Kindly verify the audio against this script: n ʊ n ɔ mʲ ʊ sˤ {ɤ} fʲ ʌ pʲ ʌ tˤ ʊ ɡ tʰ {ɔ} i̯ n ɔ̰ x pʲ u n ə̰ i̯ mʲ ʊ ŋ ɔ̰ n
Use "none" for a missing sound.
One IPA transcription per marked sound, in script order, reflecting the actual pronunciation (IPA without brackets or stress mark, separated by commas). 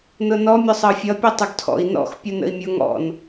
ɤ, ɔ̰